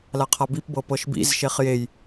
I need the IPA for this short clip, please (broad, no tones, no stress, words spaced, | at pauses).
laqʰabipbɤ pɤʃbḭzʃeχ jej